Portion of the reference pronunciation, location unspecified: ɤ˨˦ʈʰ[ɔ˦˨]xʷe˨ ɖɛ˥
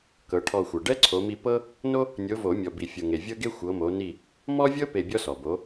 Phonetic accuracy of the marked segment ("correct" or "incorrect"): correct